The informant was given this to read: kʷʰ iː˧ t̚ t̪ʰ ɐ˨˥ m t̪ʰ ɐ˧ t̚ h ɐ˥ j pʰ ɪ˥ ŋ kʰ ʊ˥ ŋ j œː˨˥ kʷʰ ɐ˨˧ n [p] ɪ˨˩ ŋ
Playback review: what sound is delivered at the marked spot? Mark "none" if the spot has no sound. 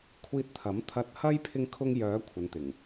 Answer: t̪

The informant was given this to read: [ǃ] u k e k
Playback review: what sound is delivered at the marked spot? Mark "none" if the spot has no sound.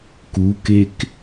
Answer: k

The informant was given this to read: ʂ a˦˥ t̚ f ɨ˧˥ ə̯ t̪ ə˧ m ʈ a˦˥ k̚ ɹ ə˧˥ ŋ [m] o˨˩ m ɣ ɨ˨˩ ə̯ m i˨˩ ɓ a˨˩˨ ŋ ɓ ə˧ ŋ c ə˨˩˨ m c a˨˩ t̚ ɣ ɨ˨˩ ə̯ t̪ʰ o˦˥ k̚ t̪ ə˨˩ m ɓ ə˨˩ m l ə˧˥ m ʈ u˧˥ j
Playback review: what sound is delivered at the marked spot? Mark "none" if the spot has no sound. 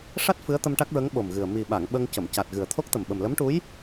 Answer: ɓ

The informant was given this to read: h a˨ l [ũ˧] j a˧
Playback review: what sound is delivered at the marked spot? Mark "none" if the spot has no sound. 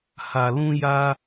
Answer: ũ˧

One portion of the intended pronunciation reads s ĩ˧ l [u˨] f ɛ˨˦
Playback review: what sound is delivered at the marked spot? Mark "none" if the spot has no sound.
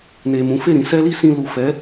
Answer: u˨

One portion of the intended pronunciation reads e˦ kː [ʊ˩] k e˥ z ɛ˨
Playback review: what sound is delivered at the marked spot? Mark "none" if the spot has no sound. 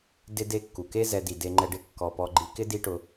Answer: u˩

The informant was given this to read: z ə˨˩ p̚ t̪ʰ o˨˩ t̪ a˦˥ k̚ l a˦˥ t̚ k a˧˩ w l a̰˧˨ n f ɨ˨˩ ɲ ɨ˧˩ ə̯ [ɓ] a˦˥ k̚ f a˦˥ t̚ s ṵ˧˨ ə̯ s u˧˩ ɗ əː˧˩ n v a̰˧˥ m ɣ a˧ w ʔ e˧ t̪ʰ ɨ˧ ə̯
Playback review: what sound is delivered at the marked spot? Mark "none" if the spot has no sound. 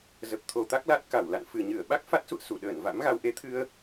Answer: ɓ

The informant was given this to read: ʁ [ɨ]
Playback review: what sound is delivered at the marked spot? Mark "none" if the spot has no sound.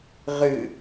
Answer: ɨ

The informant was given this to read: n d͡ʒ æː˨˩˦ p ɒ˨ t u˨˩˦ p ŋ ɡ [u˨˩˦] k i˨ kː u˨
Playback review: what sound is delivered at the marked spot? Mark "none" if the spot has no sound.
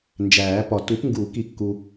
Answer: u˨˩˦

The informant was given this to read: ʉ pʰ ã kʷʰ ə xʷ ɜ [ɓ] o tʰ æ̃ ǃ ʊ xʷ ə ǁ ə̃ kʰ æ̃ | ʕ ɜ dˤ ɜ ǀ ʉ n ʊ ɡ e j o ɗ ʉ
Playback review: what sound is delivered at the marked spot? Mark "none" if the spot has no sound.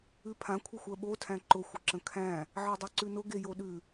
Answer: ɓ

